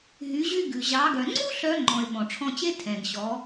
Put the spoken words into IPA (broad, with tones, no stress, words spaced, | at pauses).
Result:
ɦy˩˧ʑy˧ɡʉ˩ ʑɑ˩˧ɡœ˩ ŋ͡ǀu˥ ɬœ˧˥ŋ͡ǃɔ̃˩ɪ̯ ɓɔ̃˩ʈ͡ʂʰɔ̃˧t͡ɕe˥ tʰɛ̃˩ɡɕɔ˩˧